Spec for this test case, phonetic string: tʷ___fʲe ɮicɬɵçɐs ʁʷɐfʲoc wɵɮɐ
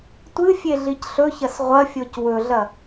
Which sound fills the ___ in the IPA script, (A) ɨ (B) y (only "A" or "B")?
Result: A